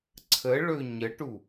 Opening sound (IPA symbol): ǀʰ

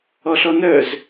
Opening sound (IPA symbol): ɔ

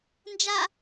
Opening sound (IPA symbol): n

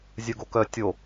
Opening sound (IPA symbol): zʲ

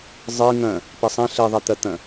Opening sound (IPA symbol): zˤ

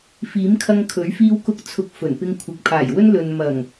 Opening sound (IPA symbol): f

